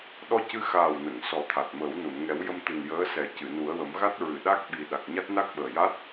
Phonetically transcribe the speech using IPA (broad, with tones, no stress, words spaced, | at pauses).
ɗɔ˧cɨ˧ xaː˨˩wnə˨˩˨ŋ sɔ˨˩˦t̪ʰa˨˩t̚məː˨˩˦w nu˨˩˨nŋɛ˨˩˦wjə˧mt̪ɨ˨˩n jəː˧˥sɛ˨˩˦ cɨ˨˩˨nu˨˩˦ə̯wə˨˩˦m ɣa˦˥t̚ɹɨ˨˩˨ ɗa˦˥k̚ɓi˨˩ ɗa˨˩k̚ɲa˦˥t̚ na˦˥k̚ɓəː˨˩ja˦˥t̚